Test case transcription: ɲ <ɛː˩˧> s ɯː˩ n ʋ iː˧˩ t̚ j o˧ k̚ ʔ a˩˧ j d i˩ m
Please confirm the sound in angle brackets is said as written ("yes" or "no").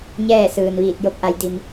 no